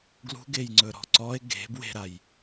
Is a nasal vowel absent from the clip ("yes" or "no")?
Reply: yes